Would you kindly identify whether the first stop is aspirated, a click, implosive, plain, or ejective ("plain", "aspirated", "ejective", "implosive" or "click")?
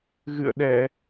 implosive